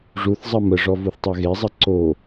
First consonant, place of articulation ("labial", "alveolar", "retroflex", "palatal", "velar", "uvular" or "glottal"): retroflex